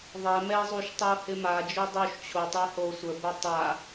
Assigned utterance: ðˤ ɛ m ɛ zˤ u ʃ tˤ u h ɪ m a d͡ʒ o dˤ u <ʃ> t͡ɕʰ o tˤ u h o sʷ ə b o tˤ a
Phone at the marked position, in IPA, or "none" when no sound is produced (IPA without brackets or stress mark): ʃ